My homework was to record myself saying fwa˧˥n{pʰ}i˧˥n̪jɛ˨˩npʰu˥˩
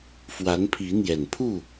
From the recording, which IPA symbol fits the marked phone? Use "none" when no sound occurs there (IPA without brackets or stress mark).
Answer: pʰ